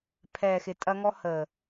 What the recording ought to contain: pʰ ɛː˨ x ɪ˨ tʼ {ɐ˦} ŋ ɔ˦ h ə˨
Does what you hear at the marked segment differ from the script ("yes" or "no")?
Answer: no